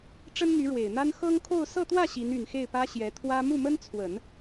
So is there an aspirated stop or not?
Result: yes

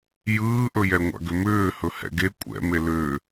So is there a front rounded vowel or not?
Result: yes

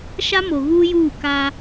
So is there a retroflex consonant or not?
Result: no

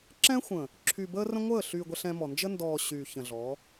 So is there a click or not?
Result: yes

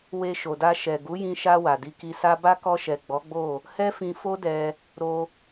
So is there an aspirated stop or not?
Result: no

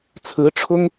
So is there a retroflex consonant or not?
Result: yes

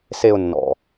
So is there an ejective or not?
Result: no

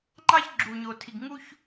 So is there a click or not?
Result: yes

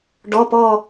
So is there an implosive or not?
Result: no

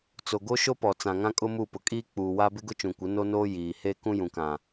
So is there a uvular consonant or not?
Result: no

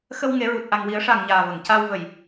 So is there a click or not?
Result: no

